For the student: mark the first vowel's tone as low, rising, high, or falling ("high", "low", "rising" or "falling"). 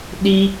high